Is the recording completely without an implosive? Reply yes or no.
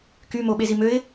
no